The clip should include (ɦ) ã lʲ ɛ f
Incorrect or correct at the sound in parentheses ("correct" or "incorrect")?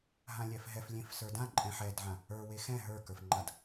correct